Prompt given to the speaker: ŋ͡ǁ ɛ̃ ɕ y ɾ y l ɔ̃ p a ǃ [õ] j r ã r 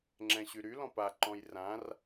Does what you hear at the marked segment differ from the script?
yes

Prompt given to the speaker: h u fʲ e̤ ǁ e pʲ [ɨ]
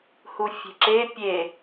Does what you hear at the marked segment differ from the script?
yes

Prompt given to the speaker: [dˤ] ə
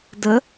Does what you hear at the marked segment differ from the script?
yes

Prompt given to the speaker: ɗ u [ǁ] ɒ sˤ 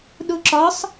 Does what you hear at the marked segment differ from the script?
no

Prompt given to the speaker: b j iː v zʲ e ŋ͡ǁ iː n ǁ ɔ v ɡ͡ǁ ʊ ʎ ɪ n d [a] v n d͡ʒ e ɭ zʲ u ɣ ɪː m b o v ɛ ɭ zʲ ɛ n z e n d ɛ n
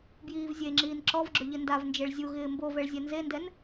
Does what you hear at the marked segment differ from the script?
no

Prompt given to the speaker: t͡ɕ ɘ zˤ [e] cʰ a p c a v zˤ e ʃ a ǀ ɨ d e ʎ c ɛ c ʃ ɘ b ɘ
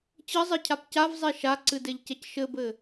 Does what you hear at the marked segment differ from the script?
yes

